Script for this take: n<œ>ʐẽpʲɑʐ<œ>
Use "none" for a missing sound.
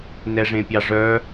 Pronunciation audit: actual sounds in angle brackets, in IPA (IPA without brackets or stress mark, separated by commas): ɛ, œ